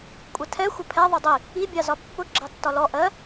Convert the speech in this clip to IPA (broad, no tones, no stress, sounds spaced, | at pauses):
kʷʼ ə tʰ ɛ xʷ ə pʰ ɛ ðˤ u dˤ i | i bʲ ɑ z ɒ pː ʊ ɡ͡ǁ ɑ tː ɒ l ɔ ʔ ɜ